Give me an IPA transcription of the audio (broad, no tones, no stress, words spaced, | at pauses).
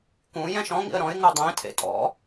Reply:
kũ jɛ̃ʃɔ̃ŋḭə̯ ɾɔ̃ɪ̯ ŋudˤẽtʰḛ tʼɔ̰